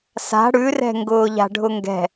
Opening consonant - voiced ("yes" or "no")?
no